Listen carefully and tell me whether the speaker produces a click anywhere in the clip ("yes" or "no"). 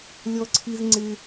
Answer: yes